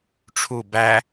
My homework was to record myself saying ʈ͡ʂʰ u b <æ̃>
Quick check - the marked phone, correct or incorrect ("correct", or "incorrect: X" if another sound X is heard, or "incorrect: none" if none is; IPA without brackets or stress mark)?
incorrect: æ